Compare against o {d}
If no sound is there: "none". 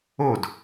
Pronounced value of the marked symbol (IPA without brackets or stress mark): d